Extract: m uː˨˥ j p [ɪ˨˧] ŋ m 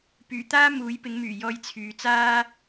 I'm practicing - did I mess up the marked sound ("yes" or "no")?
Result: yes